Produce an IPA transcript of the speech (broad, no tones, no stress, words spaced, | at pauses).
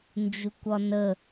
nd͡ʒukʷɒnə